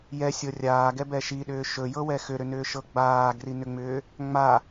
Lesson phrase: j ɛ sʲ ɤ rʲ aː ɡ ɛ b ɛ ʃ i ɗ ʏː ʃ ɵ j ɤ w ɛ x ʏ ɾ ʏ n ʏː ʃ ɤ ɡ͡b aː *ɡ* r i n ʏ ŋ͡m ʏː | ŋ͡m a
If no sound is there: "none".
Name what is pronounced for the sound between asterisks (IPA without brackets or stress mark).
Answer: ɡ